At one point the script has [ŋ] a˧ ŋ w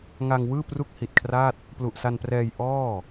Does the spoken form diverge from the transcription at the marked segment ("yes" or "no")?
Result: no